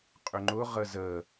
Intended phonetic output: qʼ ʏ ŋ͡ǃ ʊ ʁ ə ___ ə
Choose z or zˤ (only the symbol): z